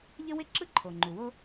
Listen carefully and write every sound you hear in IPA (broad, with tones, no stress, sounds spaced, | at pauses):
ʎ ə˥ w ɪ˥ ǁ ɯ˥ ǃʰ o˩ ŋ͡ǃ u˩ w o˥